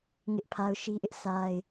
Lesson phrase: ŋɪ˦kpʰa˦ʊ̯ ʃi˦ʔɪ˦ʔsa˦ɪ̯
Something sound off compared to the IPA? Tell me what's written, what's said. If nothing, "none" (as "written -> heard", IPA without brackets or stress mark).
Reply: k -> ʔ